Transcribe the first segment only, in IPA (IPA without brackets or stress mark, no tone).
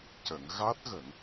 c